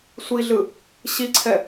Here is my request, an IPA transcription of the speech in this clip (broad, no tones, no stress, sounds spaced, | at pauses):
sʷ i ɮ ɯ | ɕ i ǀʰ ɛ